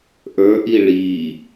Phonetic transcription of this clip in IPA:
ʔ ə˞ ʔ i ɭ i

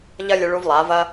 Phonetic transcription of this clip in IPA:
ʎ ɐ˦ lʲ ɨ˧ ɭ u˧ v lˠ a˨˦ v ɐ˦

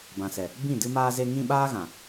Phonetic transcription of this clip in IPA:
b ã˨ s ɛ˨ | b ĩ˦˨ d ɨ˧ m aː˧ z e˧ ŋ ĩ˧ ɓ aː˦ ɣ ã˨

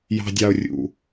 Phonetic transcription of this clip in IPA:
j ɑ̤˨ dʲ ɑ˨ o̯ rʲ ṵ˨

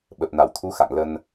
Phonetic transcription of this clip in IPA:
ɓ ə˨˩ p̚ n a˧˩ w t̪ʰ u˨˦ x a̰˧˨ ŋ l ə˧ n

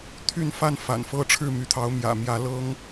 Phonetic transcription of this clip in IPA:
t̪ʰ y˥˨ n f a˥˨ n f a̰˨˩ n f ɤ˥˨ ʈ͡ʂʰ ɻ̩˥˨ m y˨˦ t̪ʰ ɑ˨˦ ʊ̯ m j ä̰˨˩ m j ä˨˦ l ɤ˦ ŋ

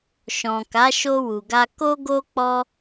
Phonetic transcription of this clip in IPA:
ʃ ɔ̃˨ k a˨˦ ʃ o˧ w u˨ ɡ a˧ k o˦ ɡ o˦ k͡p ɔ˦

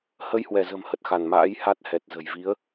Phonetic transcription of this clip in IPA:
h ə˧ j h w ɛ˧˩ z ə̤˨˩ m h ə˨˩ t̚ x a˧˩ n m a̰ː˧˥ j h a˦˥ t̚ h ɛ˨˩ t̚ z ə̤˨˩ j v i˨˦ ə̯

